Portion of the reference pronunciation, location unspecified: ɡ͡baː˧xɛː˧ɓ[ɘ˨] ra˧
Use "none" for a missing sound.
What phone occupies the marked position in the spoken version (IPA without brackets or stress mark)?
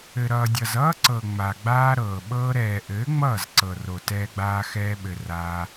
ɘ˨